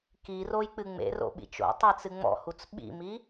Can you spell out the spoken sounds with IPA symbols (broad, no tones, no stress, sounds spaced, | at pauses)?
k i r o j k͡p ɨ ŋ͡m ḛ r o̰ ɓ ḭ t͡ʃ o̰ tˤ e t͡s ɨ ŋ͡m ɔ̰ h u t͡s ɓ ḭ m i